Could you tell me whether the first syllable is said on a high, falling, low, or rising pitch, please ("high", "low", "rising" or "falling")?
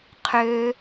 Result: low